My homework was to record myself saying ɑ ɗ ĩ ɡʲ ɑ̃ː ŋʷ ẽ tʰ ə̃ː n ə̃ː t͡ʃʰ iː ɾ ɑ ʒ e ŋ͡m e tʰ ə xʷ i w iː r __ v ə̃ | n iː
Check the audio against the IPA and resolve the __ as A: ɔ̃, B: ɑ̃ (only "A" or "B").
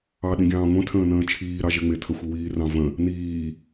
B